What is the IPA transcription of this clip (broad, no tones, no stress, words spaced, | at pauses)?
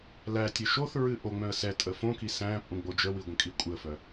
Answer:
lætʲə ʃoθɹɨ ʔoŋ͡mœ̃ə̯ sɛ tʼəfõki sæ̃pʼũ ɡ͡bod͡ʒəwi ɡʷə̃kʼikʷʼɨə̯fœ